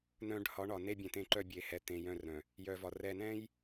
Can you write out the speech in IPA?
n œ̃˨ ɖ h ɒ˨˦ ɳ ɒ˨ n e˦ bʲ ɛ̃˨ t̪ ẽ˦ ǃ œ˦˨ bʲ e˨ h ɛ˨ t̪ ẽ˨ j œ̃˦˨ r ɾ œ̃˨ | j œ˨ v ɒ˨ r ɛ˨ n ɛ̃˦ j

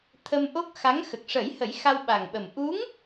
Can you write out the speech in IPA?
t̪ʰ ə˧ m ʔ o˦˥ k̚ x a˧˥ ŋ x ə˨˩ k̚ ʂ ə˨˩˦ j h ə˨˩˦ j x a˧ w ɓ a˨˩ ŋ ɓ ə˨˩ m ʔ u˧˥ ŋ

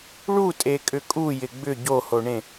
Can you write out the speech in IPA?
ɭ u tʼ e kʼ ʏ kʼ u j ɪ ɡ͡b ʏ ɟ o h o ɳ ẽ

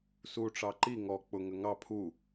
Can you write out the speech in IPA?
s u ʈ͡ʂ ɑ ǃ i ŋ ɔ k͡p ʊ ŋ ə ŋ ɑ pʰ u

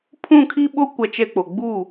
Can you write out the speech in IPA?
pʰ ũ˦˨ kʰ i˦ ɓ o˦ kʷ a˦ t͡ʃ ɛ˦ k͡p o˨ ɡ͡b u˦˨

